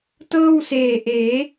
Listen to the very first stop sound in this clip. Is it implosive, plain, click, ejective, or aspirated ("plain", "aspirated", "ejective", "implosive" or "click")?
plain